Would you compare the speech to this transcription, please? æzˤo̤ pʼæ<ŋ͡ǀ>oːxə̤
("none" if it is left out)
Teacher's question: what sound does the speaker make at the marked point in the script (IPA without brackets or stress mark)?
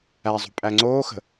ŋ͡ǀ